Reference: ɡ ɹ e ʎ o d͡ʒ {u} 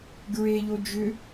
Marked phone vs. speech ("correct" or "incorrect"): incorrect